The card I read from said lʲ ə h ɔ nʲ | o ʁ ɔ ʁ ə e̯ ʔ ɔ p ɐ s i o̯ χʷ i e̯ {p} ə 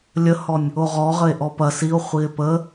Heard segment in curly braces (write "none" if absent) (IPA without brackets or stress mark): p